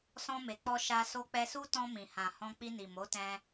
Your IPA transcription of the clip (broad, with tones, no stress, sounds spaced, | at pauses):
s ɔ̃˧ m e˨ k͡p ɔ˧ ʃ a˧ s o˧ k͡p ɛ˧ s u˦ t ɔ̃˧ m ĩ˨ h ã˨ h ɔ̃˧ k͡p i˧ n i˨ m o˨˦ t ɛ̃˧